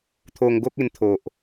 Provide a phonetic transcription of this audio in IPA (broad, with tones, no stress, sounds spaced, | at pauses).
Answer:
t̪ʰ o˧ ŋ ɡ o˦ k̚ e˧ n t̪ʰ o˨ ʔ